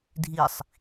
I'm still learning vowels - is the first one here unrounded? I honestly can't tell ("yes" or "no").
yes